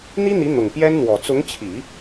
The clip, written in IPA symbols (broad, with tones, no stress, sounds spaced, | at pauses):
n̪ i˥ n̪ i˧˥ n̪ ʊ˨˩ ŋ p j ɛ˥ n n̪ w ɔ˨˩ t͡s ʊ˧˥ ŋ t͡ɕʰ i˨˩˦